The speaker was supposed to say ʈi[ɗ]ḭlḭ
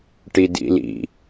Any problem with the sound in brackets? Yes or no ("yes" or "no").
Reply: yes